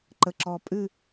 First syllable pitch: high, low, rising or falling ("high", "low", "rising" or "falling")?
low